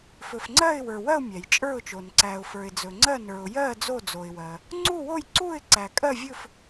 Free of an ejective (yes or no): no